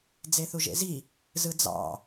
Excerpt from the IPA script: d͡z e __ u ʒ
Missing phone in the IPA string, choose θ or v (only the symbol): θ